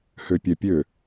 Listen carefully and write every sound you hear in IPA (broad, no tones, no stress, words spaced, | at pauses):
høpʲɛpʲø